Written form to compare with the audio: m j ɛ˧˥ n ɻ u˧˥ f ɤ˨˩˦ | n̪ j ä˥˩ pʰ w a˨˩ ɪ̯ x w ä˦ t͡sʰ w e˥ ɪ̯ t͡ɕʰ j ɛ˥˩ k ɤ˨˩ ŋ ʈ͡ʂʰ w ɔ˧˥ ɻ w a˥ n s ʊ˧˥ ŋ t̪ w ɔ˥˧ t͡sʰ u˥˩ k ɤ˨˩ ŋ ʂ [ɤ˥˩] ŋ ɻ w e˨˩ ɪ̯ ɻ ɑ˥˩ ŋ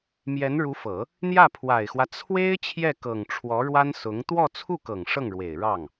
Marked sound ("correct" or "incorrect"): correct